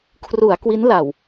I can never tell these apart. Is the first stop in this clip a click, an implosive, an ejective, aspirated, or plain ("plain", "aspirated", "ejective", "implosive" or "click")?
aspirated